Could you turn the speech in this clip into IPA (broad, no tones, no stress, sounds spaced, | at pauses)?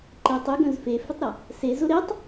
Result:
ǃ e tˤ y ɡ œ̃ z f e f ʏ tˤ ɾ ɐ | s e z ʊ ɾ e tˤ